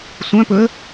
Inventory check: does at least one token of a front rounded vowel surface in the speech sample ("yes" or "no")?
yes